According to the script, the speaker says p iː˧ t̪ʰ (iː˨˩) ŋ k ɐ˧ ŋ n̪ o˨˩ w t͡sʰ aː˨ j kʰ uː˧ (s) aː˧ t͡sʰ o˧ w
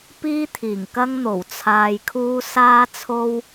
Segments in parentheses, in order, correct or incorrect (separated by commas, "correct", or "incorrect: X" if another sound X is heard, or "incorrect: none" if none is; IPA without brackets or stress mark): correct, correct